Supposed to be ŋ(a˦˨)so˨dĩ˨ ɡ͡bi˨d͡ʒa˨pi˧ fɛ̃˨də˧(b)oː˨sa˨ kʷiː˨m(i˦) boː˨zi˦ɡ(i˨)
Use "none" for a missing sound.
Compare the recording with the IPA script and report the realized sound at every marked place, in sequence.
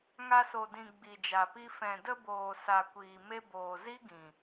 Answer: a˧, b, e˦, ĩ˨

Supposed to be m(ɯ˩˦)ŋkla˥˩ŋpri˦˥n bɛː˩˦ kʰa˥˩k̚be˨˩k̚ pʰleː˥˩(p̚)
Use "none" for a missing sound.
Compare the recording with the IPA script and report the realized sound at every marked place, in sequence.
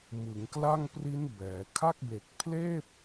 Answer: ɯ˩˦, p̚

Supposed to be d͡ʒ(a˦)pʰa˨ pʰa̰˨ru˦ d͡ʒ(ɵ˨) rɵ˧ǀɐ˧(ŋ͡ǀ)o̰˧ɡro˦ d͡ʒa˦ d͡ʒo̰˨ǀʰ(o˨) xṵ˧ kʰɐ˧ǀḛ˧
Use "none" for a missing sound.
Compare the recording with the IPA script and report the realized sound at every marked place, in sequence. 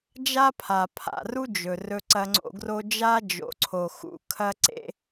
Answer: a˦, ɵ˨, ŋ͡ǀ, o˨

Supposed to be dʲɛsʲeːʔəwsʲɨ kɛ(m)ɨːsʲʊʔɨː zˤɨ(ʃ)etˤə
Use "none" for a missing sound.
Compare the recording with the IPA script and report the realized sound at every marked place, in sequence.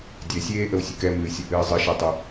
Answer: m, ʃ

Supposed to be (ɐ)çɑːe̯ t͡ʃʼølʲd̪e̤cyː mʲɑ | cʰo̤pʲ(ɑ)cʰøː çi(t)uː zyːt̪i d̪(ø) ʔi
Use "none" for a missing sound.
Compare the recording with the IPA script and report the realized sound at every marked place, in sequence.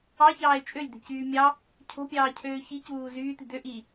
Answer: ɑ, ɑː, c, ø

